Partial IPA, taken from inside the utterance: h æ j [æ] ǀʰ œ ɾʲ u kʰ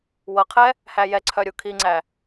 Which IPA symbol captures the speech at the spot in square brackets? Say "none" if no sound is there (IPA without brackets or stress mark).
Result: ɛ